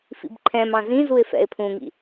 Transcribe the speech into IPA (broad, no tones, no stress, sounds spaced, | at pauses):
f ḭ b ǃʰ ɛ̃ m ɑ̃ z ĩ z u ɪ̯ f ɛ̰ ɪ̯ pʰ ũ ŋ ḭ